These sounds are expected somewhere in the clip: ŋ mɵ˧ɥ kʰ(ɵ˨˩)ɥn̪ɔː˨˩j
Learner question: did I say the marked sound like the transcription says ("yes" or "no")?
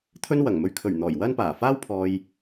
yes